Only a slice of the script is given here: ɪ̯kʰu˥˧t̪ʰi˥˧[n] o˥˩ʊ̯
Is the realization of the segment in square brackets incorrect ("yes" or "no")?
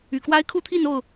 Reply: no